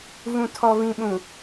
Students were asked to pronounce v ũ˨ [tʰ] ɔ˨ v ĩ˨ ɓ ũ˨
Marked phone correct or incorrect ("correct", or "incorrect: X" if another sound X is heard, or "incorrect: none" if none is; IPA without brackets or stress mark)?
correct